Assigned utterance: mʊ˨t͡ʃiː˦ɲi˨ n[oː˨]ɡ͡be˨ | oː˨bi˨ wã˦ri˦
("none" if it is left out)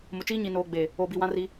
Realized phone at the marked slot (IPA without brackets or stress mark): oː˨